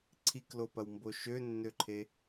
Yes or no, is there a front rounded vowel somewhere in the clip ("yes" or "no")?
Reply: yes